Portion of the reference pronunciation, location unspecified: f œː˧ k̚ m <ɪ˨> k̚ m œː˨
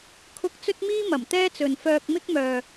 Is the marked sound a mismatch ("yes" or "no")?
yes